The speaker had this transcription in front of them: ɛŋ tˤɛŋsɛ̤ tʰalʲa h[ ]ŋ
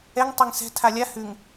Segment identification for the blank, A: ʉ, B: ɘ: A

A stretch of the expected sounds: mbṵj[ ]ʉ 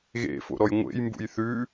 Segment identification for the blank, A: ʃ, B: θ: B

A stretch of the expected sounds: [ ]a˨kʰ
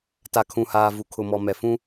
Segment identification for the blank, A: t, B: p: A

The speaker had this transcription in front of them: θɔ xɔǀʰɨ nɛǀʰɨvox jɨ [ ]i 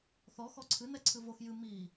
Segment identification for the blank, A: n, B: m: B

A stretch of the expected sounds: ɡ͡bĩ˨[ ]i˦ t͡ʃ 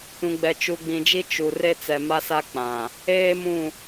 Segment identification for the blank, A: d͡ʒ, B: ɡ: A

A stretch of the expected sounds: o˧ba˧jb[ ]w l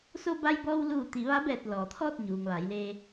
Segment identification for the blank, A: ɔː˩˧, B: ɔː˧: B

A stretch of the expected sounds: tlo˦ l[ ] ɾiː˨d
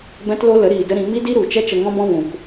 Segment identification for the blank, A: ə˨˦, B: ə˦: A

